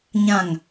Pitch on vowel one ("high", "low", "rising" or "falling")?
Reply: low